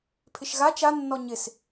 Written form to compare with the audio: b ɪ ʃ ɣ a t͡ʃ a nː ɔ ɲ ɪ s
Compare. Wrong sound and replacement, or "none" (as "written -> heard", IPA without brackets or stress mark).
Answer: b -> pʰ